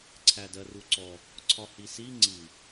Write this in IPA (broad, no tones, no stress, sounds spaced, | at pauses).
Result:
ǀʰ æ d ɜ r u ǀ ɔ | ǀʰ ɒ h i s i ŋ͡ǀ i